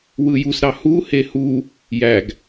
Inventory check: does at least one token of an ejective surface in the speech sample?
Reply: no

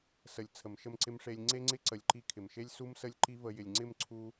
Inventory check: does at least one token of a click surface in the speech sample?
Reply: yes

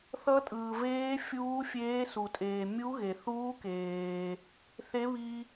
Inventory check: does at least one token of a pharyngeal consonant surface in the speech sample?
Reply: no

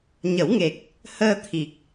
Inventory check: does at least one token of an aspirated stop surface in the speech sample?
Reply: yes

